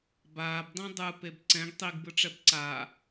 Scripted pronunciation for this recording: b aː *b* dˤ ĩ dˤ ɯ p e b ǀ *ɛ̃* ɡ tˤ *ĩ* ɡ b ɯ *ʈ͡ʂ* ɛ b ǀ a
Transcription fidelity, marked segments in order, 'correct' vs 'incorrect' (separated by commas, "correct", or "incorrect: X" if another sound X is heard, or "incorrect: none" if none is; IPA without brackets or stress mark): correct, correct, incorrect: i, correct